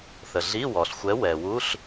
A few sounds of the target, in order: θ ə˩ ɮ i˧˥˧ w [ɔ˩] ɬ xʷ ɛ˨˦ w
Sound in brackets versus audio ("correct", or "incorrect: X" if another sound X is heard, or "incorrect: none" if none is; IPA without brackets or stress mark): correct